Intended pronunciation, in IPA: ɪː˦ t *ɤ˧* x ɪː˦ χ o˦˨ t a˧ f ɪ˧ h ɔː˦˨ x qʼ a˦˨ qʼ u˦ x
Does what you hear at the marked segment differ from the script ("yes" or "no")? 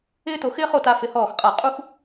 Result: yes